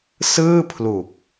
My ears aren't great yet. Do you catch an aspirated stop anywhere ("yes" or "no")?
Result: yes